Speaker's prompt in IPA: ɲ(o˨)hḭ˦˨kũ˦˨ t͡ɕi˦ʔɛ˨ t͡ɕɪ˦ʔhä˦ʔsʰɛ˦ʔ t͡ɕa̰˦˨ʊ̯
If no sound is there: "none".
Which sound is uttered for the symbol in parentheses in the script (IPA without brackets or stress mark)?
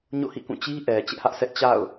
o̰˦˨